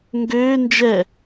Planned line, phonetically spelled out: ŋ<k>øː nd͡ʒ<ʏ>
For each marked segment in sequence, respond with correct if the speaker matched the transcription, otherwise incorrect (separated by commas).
incorrect, incorrect